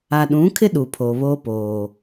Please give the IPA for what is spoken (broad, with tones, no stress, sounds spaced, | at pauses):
a˨ ɗ ũ˨˦ kʰ ɪ˦ ɗ u˨ pʰ oː˨ β oː˦ p oː˨